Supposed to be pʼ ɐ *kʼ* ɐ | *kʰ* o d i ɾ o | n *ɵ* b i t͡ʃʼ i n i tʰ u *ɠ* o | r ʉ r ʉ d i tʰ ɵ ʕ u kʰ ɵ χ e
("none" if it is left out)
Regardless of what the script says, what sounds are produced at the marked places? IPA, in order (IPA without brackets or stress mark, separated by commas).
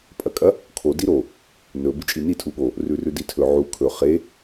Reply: kʼ, kʰ, ɵ, ɠ